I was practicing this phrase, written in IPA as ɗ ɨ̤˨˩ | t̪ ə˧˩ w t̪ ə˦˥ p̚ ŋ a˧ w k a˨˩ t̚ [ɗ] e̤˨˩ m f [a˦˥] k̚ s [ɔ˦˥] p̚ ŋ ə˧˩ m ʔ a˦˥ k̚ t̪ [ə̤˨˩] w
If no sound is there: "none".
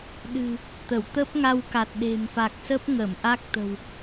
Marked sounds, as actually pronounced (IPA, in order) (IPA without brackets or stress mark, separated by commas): ɗ, a˨˩, ə˦˥, ə̤˨˩